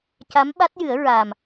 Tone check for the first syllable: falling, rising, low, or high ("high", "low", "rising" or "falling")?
rising